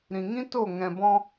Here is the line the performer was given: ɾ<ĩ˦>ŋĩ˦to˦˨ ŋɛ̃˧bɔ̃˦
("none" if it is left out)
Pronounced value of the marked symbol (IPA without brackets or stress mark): ĩ˨